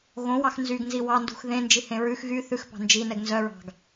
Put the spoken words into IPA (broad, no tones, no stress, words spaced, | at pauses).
ɣõwɑx nzyɡnzi wɑndṳx ðẽnd͡ʒihẽ ɹʉx ɣy θʉxpɑ̤ nd͡ʒinɛɡ nzœɹɑ̤ɡ